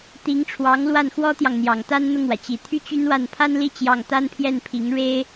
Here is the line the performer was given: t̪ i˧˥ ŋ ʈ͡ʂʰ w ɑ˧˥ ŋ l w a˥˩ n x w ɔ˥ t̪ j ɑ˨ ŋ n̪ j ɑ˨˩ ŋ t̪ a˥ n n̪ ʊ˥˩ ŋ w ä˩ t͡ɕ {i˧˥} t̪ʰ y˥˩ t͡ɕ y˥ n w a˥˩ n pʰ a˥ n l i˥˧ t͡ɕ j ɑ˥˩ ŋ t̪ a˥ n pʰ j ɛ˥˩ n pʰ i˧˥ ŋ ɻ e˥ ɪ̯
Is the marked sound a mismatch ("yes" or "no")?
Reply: yes